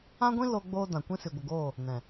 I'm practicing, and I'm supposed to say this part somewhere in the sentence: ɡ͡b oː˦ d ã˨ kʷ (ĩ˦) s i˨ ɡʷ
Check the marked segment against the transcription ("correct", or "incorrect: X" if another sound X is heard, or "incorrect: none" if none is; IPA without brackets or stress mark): correct